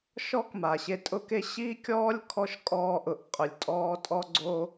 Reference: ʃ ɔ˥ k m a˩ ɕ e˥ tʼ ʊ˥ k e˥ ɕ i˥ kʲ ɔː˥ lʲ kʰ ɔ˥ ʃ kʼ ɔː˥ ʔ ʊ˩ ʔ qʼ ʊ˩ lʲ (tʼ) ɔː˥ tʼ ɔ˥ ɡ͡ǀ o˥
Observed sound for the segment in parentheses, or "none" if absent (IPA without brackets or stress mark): tʼ